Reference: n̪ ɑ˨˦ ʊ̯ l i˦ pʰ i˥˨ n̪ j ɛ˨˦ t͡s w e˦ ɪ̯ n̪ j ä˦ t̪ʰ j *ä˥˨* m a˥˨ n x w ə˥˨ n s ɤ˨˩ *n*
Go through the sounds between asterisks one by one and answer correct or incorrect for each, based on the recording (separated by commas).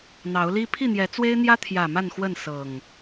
incorrect, incorrect